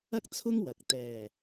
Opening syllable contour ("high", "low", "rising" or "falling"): high